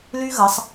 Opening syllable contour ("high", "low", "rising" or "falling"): high